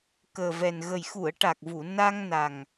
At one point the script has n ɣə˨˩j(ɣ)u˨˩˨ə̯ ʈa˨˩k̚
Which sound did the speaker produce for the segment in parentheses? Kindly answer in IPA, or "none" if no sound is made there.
x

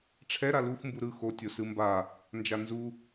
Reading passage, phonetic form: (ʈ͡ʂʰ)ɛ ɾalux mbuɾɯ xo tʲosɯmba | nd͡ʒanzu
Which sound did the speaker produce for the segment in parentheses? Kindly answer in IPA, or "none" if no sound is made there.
ʈ͡ʂʰ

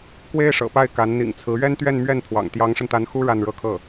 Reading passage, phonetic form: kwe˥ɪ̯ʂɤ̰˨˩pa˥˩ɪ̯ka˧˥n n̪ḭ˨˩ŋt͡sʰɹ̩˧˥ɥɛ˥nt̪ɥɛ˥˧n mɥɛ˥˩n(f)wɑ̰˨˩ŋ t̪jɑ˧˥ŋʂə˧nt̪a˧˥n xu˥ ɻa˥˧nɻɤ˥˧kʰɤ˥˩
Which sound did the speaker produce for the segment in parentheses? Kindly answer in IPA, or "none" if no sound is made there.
pʰ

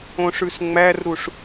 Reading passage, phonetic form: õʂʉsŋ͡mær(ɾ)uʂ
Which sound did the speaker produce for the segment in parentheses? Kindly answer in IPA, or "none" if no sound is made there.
ɾ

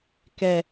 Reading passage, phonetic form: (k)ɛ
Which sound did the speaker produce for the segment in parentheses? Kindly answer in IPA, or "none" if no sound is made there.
k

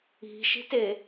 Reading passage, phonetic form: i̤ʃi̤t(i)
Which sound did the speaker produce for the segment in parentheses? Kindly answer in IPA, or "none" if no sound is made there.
e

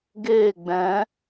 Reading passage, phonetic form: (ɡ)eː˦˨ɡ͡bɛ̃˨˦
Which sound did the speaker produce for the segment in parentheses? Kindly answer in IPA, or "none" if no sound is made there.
ɡ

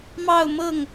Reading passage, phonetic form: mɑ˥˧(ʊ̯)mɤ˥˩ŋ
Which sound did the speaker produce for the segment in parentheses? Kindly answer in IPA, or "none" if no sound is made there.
ʊ̯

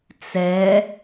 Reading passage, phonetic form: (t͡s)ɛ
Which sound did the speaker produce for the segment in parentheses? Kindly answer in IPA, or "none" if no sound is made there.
t͡s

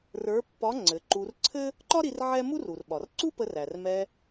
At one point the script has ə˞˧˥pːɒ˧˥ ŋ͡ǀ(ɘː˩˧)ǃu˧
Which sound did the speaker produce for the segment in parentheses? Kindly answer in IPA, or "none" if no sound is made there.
ɘ˩˧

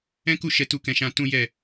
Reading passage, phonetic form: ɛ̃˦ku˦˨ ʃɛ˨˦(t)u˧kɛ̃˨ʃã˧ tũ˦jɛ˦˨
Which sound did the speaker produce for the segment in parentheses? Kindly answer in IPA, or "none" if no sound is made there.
t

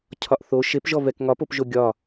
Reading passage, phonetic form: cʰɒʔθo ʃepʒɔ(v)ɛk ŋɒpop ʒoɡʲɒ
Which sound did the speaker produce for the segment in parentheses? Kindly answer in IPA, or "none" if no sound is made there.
v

